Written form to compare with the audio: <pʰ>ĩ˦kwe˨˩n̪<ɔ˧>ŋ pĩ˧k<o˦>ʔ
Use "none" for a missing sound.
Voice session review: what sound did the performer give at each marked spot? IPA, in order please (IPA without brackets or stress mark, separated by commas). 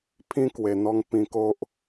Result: pʰ, ɔ˧, o˦